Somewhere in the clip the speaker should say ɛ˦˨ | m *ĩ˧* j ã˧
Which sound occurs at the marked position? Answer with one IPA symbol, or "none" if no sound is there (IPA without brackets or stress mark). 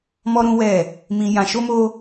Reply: ĩ˧